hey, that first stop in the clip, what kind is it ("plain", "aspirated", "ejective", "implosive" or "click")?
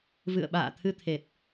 implosive